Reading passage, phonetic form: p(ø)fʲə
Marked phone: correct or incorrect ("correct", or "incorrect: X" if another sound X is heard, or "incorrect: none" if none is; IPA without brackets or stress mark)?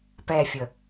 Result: incorrect: ɛ